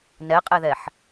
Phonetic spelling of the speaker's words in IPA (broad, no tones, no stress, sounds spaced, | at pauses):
n ɛ qʼ ɛ ð ɛ ħ